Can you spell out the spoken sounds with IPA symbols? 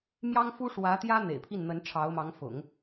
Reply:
m j ɑ˥ ŋ f u˥ ʂ w ä˧˥ t̪ j ä˥ n̪ ḛ˨˩ ɪ̯ pʰ i˥˩ n n̪ ə˧˥ n ʈ͡ʂʰ ɑ˧˥ ʊ̯ m ɑ˧˥ ŋ f ʊ̰˨˩˦ ŋ

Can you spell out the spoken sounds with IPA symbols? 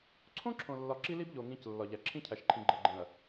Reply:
ǀʰ õ˦ ǁʰ õ˨ lː ɒ˨ ǁ i˦ l i˦ b ʎ o˨ ŋ ĩ˨˦ c lː ɒ˨ ʎ æ˨ ǁʰ ĩ˦ cʰ æ˨ ʃ ǃʰ ĩ˨ ɡ͡ǃ e˨ ɡ͡ǃ ẽ˨ ɐ̯

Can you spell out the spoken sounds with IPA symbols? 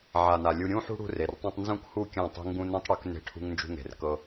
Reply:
ʕ a˨ n a˨ lʲ u˧ ɾʲ ũ˦ ħ ṳ˦ ɽ ṳ˦ r e˨ r tˤ ũ˧ tˤ n z ũ˦˨ k h u˦˨ kʲ ã˦˨ tˤ e̤˦ ŋ ɡ ũ˦ n ũ˦ tˤ ɽ u˨˦ k n e̤˦˨ ʈʰ ṳ˦ ŋ n d͡ʒ ṳ˦ ŋ e̤˨ r k ɤ˦

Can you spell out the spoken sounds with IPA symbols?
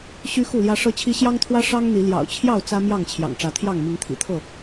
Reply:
ɕ y˦ x u˥˨ l j ä˦ ʂ ɤ˦ t͡ɕʰ i˦ ɕ j ɑ˦ ŋ t̪ʰ w ä˦ ʂ ɑ˦ ŋ n̪ i˨˦ l j ɑ̰˨˩ ʊ̯ t͡ɕʰ j ɑ˥˨ ʊ̯ t͡s ä˦ m j ɑ˥˨ ŋ t͡ɕʰ j ɑ̰˨˩ ŋ ʈ͡ʂ ä˨˦ t̪ʰ j ɑ˥˨ ŋ m i˨˦ ŋ t̪ʰ ḭ˨˩ t̪ʰ ɤ˥˨

